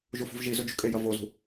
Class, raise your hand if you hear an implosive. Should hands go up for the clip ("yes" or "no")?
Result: no